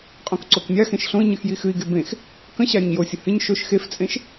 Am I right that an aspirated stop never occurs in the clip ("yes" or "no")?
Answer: yes